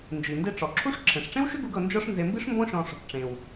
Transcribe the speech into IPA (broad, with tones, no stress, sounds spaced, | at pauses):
n d͡ʒ i˩ n d e˧ ʈ͡ʂ ɔ˩ ǁʰ u˥ ʂ ǁʰ ẽ˩ ʂ ʈ͡ʂ ẽ˥ w ʃ ʏ˥ ɡ u˧ ɡ ɤ˧ n d͡ʒ ɤ˥ ʂ n z e˧ m b i˥ ʂ m b ɔ̃˥ ʃ ɔ̃˧ ʂ | ʈ͡ʂ ẽ˩ w